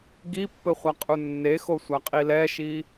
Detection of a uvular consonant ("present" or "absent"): present